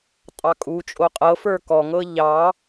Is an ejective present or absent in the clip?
present